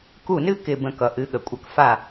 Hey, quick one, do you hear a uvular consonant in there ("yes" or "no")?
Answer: no